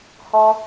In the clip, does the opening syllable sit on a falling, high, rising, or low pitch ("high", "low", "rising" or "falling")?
high